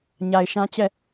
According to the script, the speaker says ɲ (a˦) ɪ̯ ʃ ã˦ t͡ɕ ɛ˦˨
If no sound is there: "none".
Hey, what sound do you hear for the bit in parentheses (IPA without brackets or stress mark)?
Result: a˨